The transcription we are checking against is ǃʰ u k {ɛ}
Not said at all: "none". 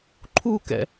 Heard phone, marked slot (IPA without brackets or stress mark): ɛ̰